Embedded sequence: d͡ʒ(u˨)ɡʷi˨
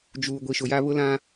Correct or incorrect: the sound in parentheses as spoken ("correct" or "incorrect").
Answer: incorrect